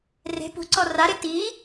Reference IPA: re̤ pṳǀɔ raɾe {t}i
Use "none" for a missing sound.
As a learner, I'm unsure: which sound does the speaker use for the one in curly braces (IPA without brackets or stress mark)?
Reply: t